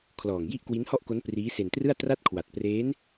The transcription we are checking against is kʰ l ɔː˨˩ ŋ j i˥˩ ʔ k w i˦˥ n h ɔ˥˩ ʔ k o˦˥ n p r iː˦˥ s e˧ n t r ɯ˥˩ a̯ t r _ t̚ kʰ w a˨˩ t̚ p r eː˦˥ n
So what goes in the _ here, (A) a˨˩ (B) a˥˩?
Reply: B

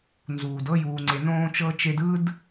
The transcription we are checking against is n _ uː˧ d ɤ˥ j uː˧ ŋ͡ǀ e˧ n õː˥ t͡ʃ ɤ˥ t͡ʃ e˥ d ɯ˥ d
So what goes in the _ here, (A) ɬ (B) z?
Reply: B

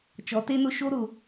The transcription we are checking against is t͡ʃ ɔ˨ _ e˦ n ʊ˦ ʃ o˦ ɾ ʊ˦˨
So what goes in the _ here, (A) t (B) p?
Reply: A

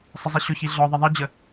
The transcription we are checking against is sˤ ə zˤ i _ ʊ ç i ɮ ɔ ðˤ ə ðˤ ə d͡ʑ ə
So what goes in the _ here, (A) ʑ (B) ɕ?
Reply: B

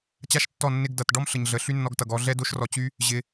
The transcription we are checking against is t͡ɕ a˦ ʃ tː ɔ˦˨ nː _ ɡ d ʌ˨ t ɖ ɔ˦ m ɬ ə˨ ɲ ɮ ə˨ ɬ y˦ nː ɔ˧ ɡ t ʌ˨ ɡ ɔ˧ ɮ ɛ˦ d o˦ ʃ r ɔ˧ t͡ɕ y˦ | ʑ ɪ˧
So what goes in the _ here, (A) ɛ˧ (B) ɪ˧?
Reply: B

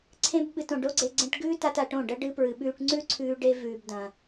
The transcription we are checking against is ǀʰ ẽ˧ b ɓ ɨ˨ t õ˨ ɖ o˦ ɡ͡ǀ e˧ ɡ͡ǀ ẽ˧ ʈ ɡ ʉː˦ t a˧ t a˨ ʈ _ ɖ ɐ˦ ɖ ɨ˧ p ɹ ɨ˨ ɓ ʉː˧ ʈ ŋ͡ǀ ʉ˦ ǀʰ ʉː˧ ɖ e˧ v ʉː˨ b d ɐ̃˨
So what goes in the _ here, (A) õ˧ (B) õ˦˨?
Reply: B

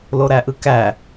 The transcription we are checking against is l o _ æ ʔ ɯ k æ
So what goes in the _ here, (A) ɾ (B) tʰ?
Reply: A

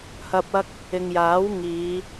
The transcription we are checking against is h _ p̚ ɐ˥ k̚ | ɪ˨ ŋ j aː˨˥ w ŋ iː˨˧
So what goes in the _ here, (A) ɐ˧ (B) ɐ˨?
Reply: A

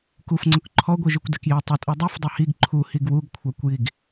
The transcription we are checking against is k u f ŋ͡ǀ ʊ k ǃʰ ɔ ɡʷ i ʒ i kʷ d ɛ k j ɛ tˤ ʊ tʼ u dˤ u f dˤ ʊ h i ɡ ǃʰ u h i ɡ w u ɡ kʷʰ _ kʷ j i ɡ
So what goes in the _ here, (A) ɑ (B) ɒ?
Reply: A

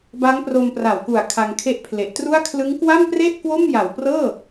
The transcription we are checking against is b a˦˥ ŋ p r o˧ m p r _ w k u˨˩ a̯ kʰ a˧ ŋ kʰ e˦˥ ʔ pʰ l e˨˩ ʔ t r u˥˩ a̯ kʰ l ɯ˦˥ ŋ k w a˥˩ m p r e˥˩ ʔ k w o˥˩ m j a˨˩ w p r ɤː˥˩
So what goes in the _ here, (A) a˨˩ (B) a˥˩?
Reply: A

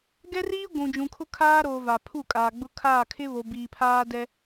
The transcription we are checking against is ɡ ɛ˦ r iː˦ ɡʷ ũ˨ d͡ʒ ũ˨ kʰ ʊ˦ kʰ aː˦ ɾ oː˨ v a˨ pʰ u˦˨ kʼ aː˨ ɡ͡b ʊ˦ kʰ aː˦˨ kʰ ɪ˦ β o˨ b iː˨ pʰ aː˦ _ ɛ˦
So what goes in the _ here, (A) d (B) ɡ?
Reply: A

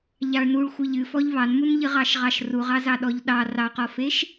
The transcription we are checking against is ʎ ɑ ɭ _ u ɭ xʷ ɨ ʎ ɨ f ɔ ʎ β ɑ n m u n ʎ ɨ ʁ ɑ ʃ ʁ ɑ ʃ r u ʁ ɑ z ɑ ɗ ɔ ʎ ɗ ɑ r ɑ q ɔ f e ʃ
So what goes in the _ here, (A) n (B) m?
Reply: A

